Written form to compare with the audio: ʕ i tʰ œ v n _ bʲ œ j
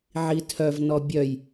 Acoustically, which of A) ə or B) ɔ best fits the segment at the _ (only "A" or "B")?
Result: B